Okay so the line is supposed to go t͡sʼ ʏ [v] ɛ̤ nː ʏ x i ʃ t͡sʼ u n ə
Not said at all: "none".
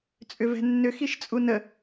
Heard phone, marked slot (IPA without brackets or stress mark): v